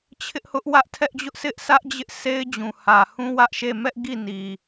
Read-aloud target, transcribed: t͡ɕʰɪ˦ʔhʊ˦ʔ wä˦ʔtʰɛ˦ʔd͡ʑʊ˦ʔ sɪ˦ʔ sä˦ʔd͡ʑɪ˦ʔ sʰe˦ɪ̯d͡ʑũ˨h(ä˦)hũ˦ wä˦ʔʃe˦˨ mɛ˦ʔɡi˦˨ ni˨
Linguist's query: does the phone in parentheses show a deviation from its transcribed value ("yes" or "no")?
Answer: yes